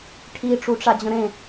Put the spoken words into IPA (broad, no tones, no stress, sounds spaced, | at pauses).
ʈʰ i ʈ͡ʂ u ʈ͡ʂ a d͡ʑ ə̃ ɾ ẽ